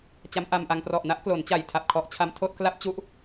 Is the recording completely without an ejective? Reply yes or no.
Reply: yes